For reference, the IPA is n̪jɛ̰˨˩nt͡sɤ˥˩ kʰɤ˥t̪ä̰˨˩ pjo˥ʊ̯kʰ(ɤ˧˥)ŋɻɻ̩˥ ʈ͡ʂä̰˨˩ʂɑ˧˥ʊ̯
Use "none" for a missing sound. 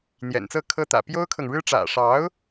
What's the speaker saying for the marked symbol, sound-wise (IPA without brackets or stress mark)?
ɤ˨